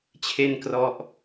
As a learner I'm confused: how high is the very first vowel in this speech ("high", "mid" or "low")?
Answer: mid